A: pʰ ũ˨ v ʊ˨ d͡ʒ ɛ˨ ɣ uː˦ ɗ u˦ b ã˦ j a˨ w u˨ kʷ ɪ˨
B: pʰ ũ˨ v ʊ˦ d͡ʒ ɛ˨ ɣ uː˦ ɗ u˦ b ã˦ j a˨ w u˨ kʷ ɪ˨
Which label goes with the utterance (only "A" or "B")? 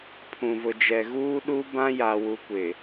A